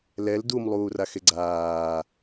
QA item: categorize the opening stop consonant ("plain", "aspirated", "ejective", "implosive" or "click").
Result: plain